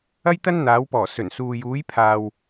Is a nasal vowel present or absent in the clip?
absent